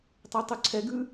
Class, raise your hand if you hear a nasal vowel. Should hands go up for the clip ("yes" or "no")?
no